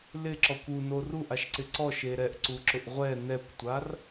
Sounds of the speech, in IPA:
l ɪ ǁ ɔ kʷ u n o r u ʔ a ʃ ǀ ɪ ǀ ɔ ʃ e ɾ ɛ ʔ ǀ u ǁ ʊ ʔ ʁʷ ɛ n ɛ kʷ tʷ a r

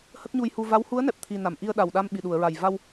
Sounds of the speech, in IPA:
h ə˦˥ k̚ ɲ u˧ j h u˧ v a˧˥ w h u˧˥ ə̯ n ɛ˨˩ p̚ t̪ʰ i˨˩ n a˨˩˨ m ʔ i˧ ə̯ ɗ a˨˩ w ɗ a˧ m ɓ i˨˩ ɗ u˨˩˨ ə̯ ɹ a˨˩ j v a˧ w

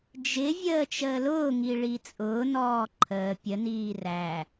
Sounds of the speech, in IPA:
d͡ʒ ɪ vʲ əː t͡ʃ əː l ʊː ŋ i ɭ i t͡sʼ ʊː n ɔː ǃʰ əː pʲ ə n iː r æ

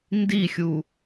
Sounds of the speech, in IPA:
n d i xʲ u

